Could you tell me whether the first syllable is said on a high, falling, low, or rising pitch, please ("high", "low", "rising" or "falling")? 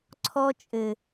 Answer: high